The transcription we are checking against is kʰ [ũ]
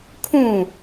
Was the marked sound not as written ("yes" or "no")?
no